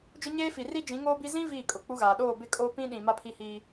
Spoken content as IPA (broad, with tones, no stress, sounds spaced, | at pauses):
d͡ʒ ʊ˦ ɲ eː˦ f i˨ r i˦ d͡ʒ ĩ˨˦ ŋ oː˦ b i˦ z ĩ˦ v iː˦˨ kʼ ʊ˨ k͡p u˦ ɣ aː˨ ɗ oː˦˨ b ɪ˦˨ kʼ oː˦ p ĩ˦ ɗ ĩ˨ m a˦ pʰ i˦ h iː˦